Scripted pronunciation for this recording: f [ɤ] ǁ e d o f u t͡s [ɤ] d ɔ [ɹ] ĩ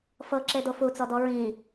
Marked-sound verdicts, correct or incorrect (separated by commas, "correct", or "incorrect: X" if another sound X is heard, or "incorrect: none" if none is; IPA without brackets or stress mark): correct, incorrect: ɔ, correct